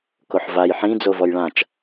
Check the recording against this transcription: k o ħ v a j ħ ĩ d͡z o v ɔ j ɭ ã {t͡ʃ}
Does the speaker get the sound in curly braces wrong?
no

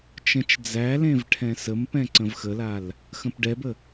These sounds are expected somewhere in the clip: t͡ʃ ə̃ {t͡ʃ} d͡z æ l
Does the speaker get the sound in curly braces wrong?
no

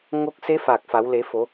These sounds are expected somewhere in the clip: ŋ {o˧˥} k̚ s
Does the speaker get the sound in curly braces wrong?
no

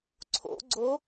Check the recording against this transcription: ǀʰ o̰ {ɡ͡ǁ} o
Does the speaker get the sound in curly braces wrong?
yes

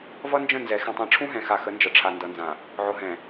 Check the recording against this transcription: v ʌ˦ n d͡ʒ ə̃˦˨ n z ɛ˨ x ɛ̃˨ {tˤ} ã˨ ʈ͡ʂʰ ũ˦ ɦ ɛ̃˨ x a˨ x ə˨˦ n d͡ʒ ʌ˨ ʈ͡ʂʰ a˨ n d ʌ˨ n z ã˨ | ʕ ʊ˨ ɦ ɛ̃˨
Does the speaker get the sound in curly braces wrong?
no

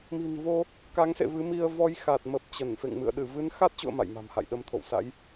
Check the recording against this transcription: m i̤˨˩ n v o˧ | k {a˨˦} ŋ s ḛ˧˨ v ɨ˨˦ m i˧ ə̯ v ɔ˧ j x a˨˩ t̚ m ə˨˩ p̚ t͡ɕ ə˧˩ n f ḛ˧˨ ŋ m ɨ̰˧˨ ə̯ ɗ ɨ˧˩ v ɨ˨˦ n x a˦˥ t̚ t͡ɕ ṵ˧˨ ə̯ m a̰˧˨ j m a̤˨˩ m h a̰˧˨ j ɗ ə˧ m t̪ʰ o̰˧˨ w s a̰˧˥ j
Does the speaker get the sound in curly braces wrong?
no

